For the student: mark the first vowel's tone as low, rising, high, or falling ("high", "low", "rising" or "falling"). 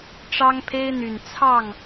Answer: high